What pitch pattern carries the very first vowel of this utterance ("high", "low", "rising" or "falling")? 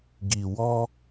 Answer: low